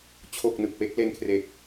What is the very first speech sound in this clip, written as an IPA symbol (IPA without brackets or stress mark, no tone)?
t͡ɕʰ